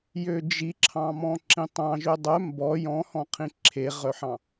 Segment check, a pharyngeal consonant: present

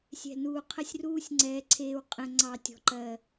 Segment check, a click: present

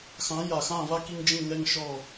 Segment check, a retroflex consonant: absent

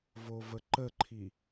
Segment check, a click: present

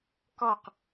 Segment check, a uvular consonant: present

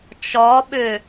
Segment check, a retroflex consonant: absent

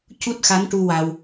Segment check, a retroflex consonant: present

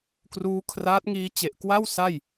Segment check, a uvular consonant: absent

